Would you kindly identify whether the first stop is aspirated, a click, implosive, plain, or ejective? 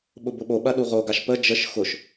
implosive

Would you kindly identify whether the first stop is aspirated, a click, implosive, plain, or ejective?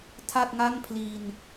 aspirated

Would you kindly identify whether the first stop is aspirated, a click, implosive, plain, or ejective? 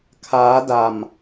aspirated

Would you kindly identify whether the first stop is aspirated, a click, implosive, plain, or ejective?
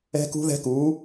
plain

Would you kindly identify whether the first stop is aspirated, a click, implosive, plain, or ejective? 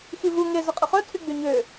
ejective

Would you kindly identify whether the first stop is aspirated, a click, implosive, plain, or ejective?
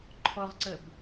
click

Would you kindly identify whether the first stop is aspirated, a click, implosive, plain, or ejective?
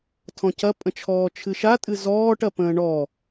aspirated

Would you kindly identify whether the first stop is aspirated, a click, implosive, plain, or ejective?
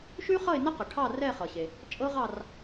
plain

